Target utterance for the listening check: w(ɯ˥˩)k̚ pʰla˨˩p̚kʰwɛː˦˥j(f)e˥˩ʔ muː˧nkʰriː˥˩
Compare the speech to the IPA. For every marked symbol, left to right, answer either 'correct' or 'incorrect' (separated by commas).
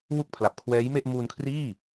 incorrect, incorrect